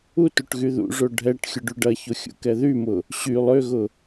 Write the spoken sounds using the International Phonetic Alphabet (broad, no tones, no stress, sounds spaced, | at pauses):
u t u ʈ ɣ y ð ṵ ʐ o ɖʱ ɛ ʈ xʲ ʊ ɖ y ɖ ɐ ç o xʲ ṵ k ɛ ð y m ʊ | ɕ y lˠ ø ɣ ʊ